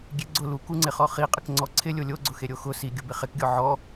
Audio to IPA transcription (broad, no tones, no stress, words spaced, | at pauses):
ɡʲeɡ͡ǀʊ lukuŋ͡ǀɪχɔ χiqʼɪkŋ͡ǀɔ ǀʰɪ lʲolʲoɡ͡ǀʊ xeɾʲoxʊ si ɡʲʊbɪχɪkɡʲɔ ʕɔ